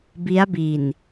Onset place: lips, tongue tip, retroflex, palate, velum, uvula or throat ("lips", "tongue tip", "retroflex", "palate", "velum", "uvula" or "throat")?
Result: lips